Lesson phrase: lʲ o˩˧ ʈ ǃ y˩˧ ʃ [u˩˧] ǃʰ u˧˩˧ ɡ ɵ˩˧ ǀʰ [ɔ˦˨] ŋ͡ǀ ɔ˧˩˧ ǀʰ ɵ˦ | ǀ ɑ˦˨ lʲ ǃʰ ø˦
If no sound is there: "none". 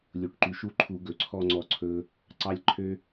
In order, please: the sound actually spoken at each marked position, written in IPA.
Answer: u˦˨, ɔ˦˨

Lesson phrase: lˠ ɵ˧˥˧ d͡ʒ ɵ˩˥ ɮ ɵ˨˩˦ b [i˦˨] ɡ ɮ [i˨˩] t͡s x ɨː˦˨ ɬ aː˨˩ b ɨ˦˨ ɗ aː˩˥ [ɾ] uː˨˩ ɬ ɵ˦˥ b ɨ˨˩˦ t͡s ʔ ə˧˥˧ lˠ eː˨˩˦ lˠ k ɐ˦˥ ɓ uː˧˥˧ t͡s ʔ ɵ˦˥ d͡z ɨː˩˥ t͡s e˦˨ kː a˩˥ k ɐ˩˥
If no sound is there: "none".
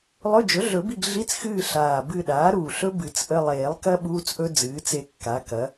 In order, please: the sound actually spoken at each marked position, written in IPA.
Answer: i˦˨, i˧˥˧, ɾ

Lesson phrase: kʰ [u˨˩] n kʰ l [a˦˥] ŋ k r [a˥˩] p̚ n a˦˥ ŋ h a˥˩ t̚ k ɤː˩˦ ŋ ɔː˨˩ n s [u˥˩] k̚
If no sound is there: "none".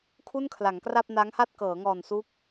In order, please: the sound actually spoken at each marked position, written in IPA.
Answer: u˥˩, a˩˦, a˥˩, u˦˥

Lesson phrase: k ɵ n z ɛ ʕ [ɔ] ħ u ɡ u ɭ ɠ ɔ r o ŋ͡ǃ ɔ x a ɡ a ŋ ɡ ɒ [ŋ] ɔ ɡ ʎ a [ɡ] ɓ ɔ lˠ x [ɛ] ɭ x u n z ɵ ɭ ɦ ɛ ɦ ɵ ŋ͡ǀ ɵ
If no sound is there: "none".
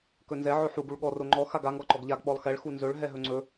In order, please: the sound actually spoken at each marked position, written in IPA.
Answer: ɵ, ǃ, ɡ, ɛ

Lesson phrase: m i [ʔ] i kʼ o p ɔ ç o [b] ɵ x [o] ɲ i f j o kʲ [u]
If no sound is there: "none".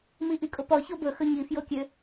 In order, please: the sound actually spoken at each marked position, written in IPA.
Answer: ʔ, b, ɵ, ø

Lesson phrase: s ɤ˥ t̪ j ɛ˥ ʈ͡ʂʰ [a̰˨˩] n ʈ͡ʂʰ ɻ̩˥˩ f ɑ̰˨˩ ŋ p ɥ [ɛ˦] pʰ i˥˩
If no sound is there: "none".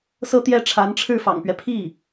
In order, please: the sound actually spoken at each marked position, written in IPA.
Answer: a˧˥, ɛ˦

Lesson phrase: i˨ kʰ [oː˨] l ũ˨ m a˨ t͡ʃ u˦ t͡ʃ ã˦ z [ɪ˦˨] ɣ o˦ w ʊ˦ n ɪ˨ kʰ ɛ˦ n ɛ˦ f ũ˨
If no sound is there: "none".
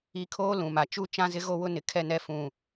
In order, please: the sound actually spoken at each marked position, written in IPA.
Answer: oː˦, ɪ˦

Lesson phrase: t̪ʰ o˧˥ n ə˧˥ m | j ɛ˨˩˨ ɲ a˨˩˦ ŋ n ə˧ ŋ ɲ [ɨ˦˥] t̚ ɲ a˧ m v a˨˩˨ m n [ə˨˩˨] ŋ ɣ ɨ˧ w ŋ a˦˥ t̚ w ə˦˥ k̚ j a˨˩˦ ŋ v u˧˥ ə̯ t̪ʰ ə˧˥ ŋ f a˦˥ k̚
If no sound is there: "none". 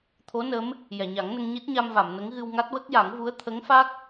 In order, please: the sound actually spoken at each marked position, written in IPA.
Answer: i˦˥, ə˧˥

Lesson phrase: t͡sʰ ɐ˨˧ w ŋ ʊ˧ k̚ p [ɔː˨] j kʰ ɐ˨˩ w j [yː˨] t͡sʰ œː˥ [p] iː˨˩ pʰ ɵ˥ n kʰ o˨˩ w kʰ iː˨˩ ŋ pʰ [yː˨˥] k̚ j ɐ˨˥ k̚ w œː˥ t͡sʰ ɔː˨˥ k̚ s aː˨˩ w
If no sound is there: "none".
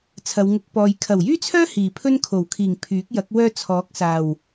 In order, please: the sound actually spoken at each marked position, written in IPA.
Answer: ɔː˨, yː˥, h, yː˨˥

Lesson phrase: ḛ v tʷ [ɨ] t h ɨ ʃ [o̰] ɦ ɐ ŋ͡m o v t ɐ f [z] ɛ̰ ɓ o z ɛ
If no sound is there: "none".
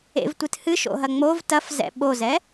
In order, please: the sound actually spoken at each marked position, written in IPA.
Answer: ɨ, o̰, z

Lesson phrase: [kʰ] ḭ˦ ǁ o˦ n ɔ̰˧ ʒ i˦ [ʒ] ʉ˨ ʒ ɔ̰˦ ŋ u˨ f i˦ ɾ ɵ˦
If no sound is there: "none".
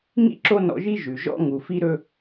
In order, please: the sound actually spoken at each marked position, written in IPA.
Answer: ŋ, ʒ

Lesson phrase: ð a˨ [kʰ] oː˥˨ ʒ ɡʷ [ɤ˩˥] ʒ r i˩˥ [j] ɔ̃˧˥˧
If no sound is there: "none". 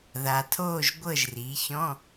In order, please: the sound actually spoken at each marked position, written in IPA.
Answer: tʰ, ɤ˥˨, ç

